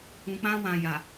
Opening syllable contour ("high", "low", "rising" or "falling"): low